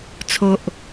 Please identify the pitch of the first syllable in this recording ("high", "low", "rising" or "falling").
low